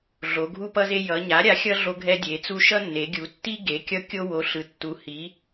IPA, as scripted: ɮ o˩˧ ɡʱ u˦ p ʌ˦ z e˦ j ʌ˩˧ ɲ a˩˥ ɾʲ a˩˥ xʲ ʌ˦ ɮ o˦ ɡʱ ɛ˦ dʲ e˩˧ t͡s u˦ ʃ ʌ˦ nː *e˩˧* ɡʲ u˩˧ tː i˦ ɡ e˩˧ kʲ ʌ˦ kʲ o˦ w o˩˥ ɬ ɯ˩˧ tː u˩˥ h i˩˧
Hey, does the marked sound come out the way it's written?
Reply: yes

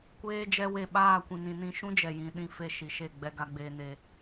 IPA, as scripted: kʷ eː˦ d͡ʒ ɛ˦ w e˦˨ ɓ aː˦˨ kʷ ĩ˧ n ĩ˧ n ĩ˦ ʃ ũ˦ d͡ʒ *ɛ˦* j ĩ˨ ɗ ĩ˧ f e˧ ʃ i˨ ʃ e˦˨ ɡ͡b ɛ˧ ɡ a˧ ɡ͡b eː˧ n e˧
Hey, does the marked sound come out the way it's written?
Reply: no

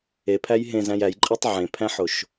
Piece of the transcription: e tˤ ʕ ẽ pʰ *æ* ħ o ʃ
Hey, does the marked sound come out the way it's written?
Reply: no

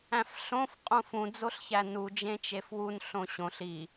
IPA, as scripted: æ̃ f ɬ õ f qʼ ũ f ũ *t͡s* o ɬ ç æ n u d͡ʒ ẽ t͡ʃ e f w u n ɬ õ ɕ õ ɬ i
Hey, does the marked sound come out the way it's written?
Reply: no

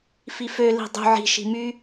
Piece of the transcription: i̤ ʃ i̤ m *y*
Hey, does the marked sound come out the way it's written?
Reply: yes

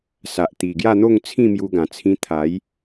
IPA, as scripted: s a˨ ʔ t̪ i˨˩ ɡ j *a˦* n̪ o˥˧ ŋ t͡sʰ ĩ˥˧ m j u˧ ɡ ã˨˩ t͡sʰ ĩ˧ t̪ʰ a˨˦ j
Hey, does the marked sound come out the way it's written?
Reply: no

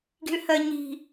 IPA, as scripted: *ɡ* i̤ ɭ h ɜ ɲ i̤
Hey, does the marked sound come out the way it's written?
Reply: yes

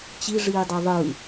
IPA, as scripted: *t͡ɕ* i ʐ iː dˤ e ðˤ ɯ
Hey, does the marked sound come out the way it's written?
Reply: yes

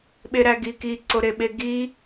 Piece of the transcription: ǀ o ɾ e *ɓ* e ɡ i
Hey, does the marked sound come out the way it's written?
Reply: yes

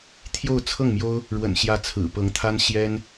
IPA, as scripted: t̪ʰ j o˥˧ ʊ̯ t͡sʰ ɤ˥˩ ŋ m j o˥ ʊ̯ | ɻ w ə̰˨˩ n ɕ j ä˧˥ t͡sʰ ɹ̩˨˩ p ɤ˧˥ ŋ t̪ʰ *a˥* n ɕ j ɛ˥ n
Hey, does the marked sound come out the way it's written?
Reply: yes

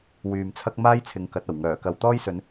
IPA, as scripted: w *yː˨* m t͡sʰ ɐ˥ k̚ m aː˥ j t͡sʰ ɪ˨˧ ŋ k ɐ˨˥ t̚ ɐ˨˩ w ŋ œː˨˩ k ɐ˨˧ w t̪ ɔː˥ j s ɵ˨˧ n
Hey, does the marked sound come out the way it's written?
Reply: yes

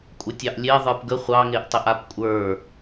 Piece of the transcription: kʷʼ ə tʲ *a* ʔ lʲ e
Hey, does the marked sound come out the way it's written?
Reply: no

